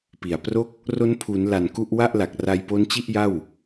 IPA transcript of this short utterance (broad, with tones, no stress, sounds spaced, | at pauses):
p i˨˩ a̯ p r o˥˩ k̚ | r o˦˥ n pʰ u˩˦ n l a˨˩ n k u˥˩ ʔ w a˥˩ ʔ l a˨˩ k̚ r a˧ j p o˦˥ n t͡ɕ i˥˩ ʔ j a˥˩ w